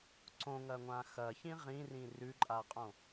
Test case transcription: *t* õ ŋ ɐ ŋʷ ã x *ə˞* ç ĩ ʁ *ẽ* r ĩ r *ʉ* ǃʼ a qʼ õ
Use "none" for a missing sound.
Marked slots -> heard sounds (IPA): ǀ, ɐ, ĩ, ʉ

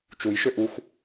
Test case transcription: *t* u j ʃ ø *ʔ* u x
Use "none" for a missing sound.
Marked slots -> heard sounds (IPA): t͡ʃ, ʔ

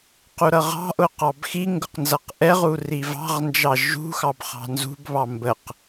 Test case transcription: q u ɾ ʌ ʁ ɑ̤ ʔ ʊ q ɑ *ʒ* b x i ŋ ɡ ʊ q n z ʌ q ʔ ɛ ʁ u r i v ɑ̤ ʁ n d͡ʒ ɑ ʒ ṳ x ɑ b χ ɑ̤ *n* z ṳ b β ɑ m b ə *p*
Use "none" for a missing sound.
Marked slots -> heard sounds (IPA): none, n, q

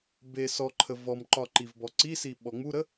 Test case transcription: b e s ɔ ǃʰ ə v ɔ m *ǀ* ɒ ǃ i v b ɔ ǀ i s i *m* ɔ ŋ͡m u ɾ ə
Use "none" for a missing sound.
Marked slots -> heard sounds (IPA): ǃ, ɓ

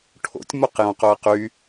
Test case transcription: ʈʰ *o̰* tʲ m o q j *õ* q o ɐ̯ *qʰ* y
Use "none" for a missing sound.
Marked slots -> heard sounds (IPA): o̰, õ, q

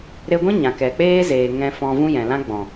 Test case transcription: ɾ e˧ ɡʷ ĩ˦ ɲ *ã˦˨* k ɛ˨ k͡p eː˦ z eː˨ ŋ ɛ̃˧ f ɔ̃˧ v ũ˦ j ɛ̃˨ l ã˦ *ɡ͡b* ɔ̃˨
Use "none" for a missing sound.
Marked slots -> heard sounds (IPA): ã˨, ɡ͡b

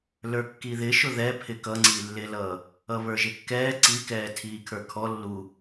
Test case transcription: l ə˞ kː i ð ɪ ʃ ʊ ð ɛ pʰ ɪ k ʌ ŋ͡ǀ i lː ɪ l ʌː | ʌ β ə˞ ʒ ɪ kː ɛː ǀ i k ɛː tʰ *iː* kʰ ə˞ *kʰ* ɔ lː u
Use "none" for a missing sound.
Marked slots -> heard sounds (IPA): iː, kʰ

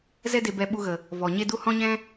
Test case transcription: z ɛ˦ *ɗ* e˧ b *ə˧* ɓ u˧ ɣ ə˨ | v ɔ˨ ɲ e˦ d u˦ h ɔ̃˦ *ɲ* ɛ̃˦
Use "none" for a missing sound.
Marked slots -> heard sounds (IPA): d, ɛ˧, ɲ

